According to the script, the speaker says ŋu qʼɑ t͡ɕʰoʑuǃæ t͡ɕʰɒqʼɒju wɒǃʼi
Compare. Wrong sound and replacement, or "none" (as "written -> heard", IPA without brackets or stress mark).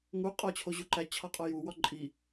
ɑ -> ɒ